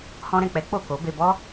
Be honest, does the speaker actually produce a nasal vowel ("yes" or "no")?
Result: yes